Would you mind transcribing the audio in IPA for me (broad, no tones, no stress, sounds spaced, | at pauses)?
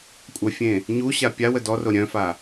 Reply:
kʷʼ œ fʲ ẽ | ɲ u ɕ a pʲ a w ə d ɔ r o ɾʲ œ̃ f a